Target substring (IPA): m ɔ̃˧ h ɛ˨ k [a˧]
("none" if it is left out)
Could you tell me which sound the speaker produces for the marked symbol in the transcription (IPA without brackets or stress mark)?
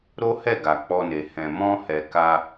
a˧